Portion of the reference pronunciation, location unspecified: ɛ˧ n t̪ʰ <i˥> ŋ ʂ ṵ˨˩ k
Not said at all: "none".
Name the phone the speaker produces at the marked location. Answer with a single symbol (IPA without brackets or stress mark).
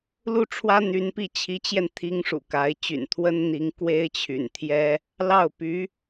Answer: i˥